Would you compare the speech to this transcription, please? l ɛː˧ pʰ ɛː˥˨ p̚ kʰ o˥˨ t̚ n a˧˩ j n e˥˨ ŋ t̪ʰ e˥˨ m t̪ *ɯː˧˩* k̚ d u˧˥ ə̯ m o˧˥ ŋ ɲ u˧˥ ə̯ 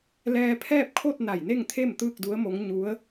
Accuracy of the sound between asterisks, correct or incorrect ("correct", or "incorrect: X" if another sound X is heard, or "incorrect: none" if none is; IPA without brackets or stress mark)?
incorrect: ɯː˥˨